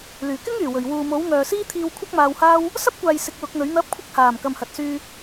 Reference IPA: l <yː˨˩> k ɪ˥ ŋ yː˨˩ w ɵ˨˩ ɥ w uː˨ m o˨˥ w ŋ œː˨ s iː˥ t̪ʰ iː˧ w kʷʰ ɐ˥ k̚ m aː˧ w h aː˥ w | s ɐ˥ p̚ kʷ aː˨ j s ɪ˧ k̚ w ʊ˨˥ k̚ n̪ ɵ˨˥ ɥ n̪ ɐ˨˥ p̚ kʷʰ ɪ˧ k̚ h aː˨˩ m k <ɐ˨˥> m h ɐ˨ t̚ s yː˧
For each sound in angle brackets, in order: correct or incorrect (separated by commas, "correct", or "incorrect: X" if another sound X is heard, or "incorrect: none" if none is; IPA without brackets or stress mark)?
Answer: correct, incorrect: ɐ˨